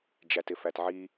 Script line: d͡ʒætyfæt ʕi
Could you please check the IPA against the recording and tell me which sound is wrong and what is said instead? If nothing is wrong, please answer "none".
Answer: y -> ɪ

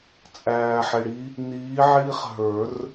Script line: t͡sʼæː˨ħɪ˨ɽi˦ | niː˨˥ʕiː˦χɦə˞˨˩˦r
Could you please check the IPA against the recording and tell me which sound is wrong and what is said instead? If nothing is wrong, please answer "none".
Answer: none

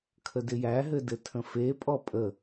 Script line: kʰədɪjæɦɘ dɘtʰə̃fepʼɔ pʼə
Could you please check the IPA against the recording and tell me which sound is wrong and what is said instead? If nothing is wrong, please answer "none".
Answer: none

